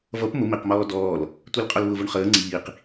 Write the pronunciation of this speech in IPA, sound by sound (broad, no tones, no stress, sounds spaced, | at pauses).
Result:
v ʌ p m ʊ m i q m ɔː d ɔː l | tʷ i l qʼ ɔ l β ʊ v ʊ ɳ χ əː ŋ͡ǀ iː q